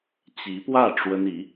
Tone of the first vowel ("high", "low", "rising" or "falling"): rising